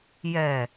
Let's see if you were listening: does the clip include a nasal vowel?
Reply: no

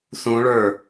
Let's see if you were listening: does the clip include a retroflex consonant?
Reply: yes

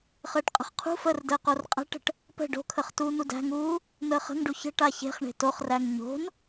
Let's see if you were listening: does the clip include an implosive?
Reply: no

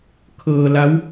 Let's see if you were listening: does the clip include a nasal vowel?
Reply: no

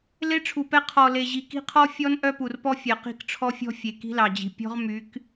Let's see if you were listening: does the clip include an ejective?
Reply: no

